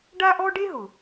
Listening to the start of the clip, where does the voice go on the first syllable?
high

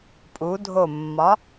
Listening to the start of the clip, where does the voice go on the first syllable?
rising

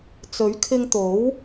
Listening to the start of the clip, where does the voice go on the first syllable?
rising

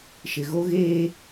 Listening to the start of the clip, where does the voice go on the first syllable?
low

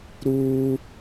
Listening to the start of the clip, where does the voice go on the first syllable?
high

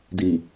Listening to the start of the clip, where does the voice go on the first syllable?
low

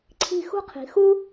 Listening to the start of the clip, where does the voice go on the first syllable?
falling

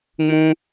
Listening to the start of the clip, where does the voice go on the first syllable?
high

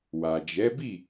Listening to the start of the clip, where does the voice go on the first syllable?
low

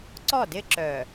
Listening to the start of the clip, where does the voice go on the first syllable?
falling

